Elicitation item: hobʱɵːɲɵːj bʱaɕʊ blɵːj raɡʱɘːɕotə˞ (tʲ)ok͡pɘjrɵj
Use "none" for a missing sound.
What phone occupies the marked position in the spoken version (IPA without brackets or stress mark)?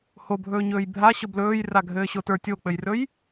tʲ